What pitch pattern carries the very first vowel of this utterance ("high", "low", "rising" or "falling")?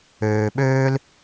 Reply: low